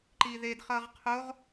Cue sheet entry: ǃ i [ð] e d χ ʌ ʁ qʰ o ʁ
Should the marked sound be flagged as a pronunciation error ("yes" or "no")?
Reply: no